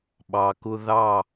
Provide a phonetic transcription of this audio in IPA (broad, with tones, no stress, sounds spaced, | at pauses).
ɓ ɑ˨ k ʊ˦ ð ɑ˦˨